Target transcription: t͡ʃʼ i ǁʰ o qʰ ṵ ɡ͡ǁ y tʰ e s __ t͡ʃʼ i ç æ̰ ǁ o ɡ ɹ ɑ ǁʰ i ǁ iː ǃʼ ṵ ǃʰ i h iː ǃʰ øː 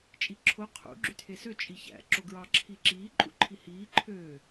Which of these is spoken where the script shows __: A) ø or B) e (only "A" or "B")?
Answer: A